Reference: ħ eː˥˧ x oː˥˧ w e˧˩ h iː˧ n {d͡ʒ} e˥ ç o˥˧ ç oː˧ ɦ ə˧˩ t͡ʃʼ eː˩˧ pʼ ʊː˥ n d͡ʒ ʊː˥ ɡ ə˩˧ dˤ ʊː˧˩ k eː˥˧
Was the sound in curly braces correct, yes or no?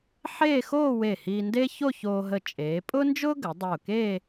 no